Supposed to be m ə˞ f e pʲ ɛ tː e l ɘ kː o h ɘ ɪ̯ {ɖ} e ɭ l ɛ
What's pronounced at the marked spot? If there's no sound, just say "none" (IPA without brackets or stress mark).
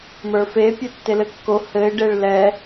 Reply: ɖ